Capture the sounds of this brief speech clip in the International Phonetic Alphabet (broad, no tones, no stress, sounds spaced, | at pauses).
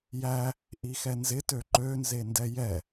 j æ | ʔ i x ɛ n z ɪ t ø ǃ ø n z e n d ɛ j ɛ